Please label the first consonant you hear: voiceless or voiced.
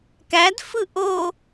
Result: voiceless